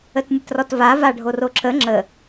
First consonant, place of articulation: alveolar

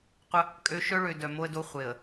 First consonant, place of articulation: uvular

